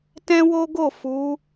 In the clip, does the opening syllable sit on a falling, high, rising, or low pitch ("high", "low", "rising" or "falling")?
high